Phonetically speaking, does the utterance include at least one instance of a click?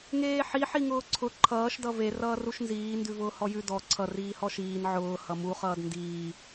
yes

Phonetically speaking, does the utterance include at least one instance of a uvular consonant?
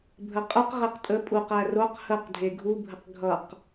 yes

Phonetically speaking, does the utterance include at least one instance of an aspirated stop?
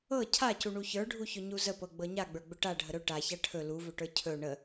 yes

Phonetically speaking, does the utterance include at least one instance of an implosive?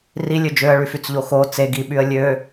yes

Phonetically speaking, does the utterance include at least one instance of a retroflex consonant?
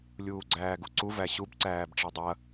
yes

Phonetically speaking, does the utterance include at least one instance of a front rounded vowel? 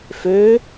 yes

